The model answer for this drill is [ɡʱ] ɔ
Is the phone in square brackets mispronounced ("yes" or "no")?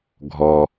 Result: no